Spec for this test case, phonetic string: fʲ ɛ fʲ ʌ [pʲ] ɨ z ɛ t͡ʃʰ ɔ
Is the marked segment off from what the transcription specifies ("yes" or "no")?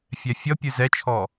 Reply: no